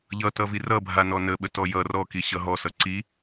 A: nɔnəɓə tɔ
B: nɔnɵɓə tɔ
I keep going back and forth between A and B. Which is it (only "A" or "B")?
A